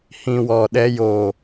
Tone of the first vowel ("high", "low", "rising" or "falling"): low